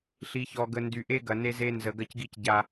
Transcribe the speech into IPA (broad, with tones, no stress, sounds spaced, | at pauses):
ɬ i˨ ç ɔ˨ ɡ ə˨ n d y˨ ʔ e˦ ɡ ɐ˨ n e˦ z e˦ n z ə˨ ɡ ɐ˦ c ɡ i˦ c ɟ a˦